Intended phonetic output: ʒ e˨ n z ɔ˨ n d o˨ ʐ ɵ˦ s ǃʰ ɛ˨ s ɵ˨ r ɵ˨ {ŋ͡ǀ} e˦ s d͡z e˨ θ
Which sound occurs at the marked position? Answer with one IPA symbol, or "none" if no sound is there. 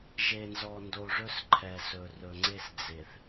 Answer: ŋ͡ǀ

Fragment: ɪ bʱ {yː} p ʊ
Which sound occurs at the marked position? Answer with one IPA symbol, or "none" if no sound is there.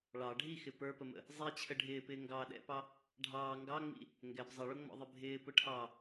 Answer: ɪː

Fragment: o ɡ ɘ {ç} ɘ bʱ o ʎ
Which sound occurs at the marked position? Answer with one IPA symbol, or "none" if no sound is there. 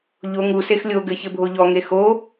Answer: ç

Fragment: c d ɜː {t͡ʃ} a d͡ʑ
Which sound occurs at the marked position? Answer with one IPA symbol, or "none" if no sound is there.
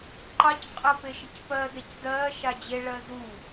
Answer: ʃ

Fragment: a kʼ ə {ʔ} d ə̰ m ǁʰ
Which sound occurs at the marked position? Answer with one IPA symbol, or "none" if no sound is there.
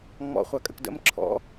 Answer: k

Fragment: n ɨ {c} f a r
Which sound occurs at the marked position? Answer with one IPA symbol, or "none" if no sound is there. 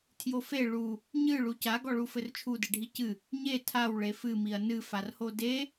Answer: none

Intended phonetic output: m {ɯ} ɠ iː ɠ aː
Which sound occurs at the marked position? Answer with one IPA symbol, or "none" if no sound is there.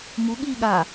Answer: u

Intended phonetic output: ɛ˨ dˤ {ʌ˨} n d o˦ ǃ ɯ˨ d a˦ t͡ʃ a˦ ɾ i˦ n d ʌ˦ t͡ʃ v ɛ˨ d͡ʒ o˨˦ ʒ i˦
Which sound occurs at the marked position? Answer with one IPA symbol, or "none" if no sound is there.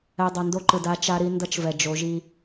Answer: ʌ˨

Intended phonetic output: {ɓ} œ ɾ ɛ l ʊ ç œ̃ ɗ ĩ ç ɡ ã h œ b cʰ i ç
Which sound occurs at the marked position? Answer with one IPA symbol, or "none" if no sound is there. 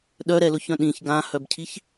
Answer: ɗ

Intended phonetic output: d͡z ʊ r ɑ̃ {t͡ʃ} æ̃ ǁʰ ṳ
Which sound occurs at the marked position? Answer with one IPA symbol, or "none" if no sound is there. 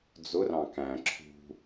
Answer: k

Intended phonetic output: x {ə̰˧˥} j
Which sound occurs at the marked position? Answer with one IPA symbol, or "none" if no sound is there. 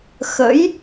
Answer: ə̰˧˥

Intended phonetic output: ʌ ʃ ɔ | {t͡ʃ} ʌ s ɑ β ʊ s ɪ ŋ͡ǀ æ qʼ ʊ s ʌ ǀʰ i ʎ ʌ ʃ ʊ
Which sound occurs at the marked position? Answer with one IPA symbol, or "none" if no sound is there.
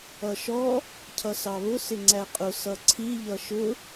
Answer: cʰ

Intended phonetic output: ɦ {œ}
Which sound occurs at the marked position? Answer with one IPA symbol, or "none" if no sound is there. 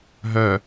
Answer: œ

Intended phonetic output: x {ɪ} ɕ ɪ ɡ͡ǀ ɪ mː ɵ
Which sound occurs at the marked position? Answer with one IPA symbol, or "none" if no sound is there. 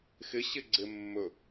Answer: ɪ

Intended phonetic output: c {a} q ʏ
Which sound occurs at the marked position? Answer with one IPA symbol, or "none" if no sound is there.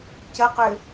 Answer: ə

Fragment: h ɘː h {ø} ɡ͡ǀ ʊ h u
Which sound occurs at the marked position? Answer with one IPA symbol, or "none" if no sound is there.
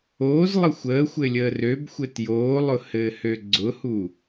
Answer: ø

